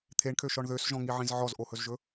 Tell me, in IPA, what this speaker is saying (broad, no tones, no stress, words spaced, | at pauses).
t̪ʰeɳkʰøʃɔɳ ðøsʒɔ̃ŋiʕĩz ʕɔzʔohɵzʒɵ